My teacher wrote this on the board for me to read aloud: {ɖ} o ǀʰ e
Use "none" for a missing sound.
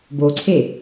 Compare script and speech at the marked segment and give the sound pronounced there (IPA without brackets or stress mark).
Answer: b